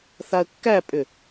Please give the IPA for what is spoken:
θ a ə̯ kː æ pʼ ʏ

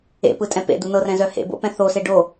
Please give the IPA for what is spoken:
ḛ p ɯ tʼ ɛ̃ p ḛ d̪ u n ɤ r ɛ̃ z œ h ḛ b o̰ p ɛ̃ θ o s e ɖ o

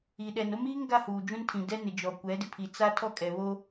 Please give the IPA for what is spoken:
i˨ ɗ ɛ˨ n o˦ m iː˦ ŋ ɡ a˦ h uː˨ d͡ʒ ũ˦ n tʰ ĩ˨ d ɛ˦ n ɪ˨ d͡ʒ ɔ˨ kʷ ɛ˨˦ d ɪ˨ pʰ i˨ t͡s a˦ tʰ ɔ˦˨ kʼ ɛ˨ β o˦

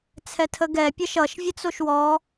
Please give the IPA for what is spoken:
t͡sʰ ɛ tʰ ə ɡ ɛ pʲ ʌ ʃ ʌ ʃ vʲ ə t͡s o ʃ w ɔ

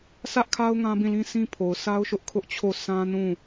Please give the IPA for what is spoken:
sʰ ä˦ ʔ kʰ a˦ ʊ̯ ŋ ã˦ b ĩ˦˨ l ĩ˦ sʰ ĩ˦ pʰ o˨ ʊ̯ sʰ a˦ ʊ̯ ʃ ʊ˦ ʔ kʰ ʊ˦ ʔ t͡ɕʰ o˦˨ sʰ ã˦ n ũ˦˨

